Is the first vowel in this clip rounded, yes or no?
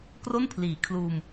yes